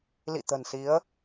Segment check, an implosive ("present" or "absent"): absent